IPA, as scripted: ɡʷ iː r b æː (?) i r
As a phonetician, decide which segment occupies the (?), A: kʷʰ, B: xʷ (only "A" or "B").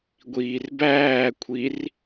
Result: A